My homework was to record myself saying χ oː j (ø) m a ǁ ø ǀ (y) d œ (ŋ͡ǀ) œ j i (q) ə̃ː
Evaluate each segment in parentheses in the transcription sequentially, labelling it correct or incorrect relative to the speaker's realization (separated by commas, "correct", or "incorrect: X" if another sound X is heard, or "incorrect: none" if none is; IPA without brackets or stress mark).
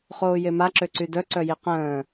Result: incorrect: e, correct, incorrect: ǀ, correct